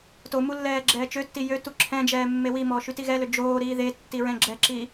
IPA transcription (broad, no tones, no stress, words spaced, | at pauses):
tomu lːɛːɡ͡ǁɛːt͡ʃøtːi jøtu ǁʰɛ̃d͡ʒɛː mːewimɔ ʃytiɣɛlø d͡ʒoːɾiː ðe tːiɹɛ̃ɡ͡ǁɛǁiː